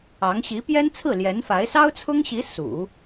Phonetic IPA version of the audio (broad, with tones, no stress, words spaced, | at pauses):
ɑ˧˥ŋ ɕi˧˥pjɛ˥nt͡sʰɹ̩˥˩ ljɛ˧˥nfa˧˥ɪ̯ sɑ˥ʊ̯t͡sʰʊ˥ŋɕi˧˥ sṵ˨˩˦